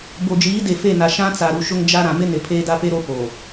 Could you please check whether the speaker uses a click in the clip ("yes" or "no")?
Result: no